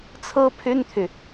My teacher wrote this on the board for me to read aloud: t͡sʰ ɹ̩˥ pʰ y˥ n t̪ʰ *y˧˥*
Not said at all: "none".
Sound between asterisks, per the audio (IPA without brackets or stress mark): y˨